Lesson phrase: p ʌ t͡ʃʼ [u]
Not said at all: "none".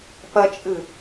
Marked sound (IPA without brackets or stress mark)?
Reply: ɯ